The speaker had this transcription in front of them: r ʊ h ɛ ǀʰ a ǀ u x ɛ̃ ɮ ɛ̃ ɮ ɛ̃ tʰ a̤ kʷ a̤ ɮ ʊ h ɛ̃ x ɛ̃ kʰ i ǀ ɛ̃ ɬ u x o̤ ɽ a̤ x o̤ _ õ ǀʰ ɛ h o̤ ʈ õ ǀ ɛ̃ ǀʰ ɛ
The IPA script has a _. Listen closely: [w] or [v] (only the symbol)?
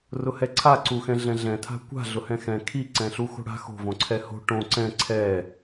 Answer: v